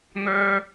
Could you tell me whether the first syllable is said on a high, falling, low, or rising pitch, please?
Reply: high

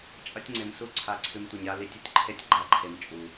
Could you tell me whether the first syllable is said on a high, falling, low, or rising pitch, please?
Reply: high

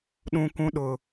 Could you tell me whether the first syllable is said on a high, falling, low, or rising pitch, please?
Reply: high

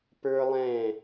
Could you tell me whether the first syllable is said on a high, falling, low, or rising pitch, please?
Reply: high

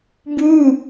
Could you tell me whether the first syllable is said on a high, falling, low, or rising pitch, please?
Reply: falling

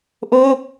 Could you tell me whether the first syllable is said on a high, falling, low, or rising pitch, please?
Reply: falling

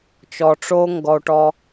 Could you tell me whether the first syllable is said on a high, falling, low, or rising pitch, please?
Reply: low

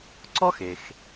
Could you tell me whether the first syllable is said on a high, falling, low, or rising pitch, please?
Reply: high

